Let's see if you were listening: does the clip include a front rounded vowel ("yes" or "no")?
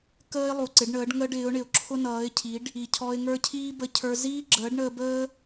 no